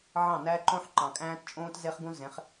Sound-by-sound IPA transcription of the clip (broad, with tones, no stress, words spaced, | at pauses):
ʕɑ̃˦˨næ˦ǃõ˦ħ ǃɑ̃˨kʼæ̃ː˦tt͡ʃʼõː˦t ze˦χɡũ˦ zẽ˨˦χ